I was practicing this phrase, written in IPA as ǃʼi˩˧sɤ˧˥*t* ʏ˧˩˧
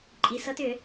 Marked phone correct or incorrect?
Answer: correct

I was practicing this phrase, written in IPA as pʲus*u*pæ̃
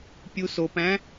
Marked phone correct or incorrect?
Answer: incorrect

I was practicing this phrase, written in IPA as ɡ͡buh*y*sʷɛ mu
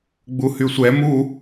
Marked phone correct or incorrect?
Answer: correct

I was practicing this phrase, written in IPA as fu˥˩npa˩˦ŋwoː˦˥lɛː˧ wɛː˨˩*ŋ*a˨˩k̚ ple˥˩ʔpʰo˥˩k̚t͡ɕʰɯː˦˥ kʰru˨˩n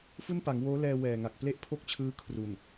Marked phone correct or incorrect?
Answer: correct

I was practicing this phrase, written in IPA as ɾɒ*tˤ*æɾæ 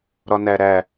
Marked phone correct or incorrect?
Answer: incorrect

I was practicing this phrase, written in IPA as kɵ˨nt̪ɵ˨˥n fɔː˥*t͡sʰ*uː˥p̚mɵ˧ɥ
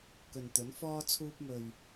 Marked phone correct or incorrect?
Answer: correct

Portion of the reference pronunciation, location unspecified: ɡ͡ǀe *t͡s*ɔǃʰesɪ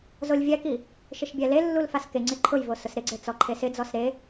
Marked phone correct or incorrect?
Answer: correct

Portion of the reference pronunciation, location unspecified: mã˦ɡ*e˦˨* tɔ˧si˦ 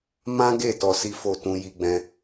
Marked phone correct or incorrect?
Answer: correct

